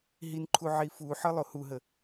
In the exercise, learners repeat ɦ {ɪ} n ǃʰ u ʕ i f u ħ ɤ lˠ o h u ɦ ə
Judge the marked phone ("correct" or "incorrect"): incorrect